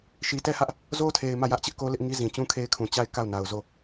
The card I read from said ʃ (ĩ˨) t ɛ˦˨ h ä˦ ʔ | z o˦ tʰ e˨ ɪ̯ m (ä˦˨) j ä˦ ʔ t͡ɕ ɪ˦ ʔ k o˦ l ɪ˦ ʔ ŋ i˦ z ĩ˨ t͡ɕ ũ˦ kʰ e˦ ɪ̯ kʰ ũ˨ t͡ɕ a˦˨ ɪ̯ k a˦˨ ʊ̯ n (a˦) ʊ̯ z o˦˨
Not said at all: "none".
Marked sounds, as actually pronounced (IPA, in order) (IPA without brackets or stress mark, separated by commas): i˨, ä˦˨, a˨